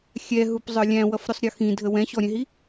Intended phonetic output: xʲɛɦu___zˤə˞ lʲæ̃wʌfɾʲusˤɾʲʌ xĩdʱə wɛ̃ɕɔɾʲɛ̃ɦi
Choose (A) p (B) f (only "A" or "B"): A